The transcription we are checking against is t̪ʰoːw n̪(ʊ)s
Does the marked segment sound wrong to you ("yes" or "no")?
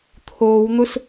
no